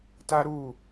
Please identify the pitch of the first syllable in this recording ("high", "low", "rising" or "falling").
high